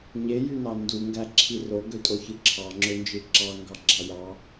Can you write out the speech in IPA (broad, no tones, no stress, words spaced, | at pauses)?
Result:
ɲejynɑ nduŋɡæǁʰi roɡøtʼoçɯ ǁʰɑŋ͡ǁønd͡ʒɯ ǁɑŋɡɑɡ͡ǁɑ jɑ